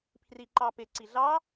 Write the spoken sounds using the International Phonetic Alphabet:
pʰriǃɑpɪ ǀiɮɑ

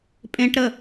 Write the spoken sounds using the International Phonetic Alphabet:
pʼẽʈɾə

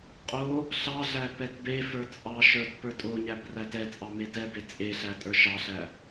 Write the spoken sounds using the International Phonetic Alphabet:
qʼo | ɬɑɮæ pɛtbefə˞ t͡sʼɑʃə˞t pə˞tʼoɲæb rætɛt͡sʼɑ metɛbe t͡sʼeɬæ tʼə˞ʃɑɬæ

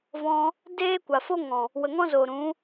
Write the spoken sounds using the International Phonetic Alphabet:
vɔ̃˧ | deː˦kʷa˨fo˦ŋɔ̃˨ | wə˨ŋɔ̃˦zoː˨ ɾũ˨˦

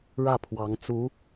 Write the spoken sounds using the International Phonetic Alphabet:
ɻä˥˩pʰwɑ˧˥ŋ t͡su˧˥

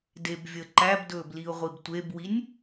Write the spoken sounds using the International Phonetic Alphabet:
debvʲə ǃæbdɵːbliʊ̯ʁʷib tʷebwinʲ

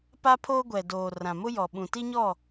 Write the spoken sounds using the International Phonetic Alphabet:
pa˦pʰoː˦ɡʷɛ˨doː˨ rã˨mʊ˦jɔ˨ ɓũ˨ti˦ɲɔ˦˨

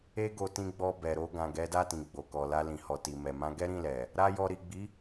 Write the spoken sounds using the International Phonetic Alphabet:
e˧ɡo˨ tĩ˧ɡ͡bɔ˧ bɛ˨ɾo˧ ɡã˨ɡɛ˨˦da˦˨tĩ˨ ɡ͡bo˨kɔ˨la˧ lĩ˨hɔ˨ti˨ mɛ˨mã˧ ɡɛ˦ɾĩ˦˨lɛ˨ | ɾa˦jɔ˧ ɾi˨ɡ͡bi˨˦

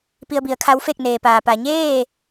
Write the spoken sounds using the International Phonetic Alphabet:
pi˧ə̯bi˩˧ə̯kʰa˧˥wfe˥˨k̚ neː˩paː˩ pa˩ɲeː˥˨

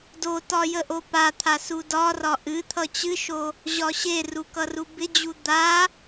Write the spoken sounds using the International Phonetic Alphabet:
dotɒ jəʔopat̪ʰa sudɒrɒ ʔɨt̪ʰʌ t͡ɕɨʃo | ʑɒɕeru kʌrubɪd͡ʑu d̪a

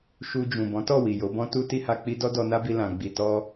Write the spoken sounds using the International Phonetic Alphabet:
ʃu˧d͡ʒũ˨ bɔ̃˨˦tɔ˦˨ wi˨jo˨˦bɔ̃˦ tu˦ ti˦ha˧k͡pi˦ dɔ˦dɔ˧na˦bi˧ lã˨ɡ͡bi˨tɔ˧

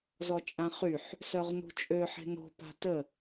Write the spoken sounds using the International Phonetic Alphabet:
zɔt͡ʃʼãχyħ | sœʁnṳt͡ʃʼø ħe̤no̤ pa̤tə

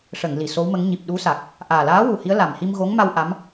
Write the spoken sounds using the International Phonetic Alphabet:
ʂə˨˩˨ŋ li˨˩˨so˧˥wmə˧˥ŋ ɲi˨˩p̚ ɗu˧˥sa˨˩k̚ | ʔaː˨˩laː˧˥ wu˨˩hi˧˥ə̯ la˨˩mhi˧mɣo˧˥ŋma˧w ʔa˧˥m

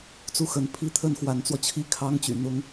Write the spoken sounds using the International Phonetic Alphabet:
t͡su˥˩xə˧˥npʰi˥˧ t̪ʰə˥˩nxwa˧˥nt͡swɔ˧t͡ɕʰi˥ kʰɑ˥ŋt͡ɕy̰˨˩n̪ʊ˥ŋ

